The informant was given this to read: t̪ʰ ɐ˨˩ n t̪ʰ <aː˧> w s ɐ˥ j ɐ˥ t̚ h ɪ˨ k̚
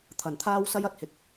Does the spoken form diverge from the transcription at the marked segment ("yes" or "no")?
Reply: yes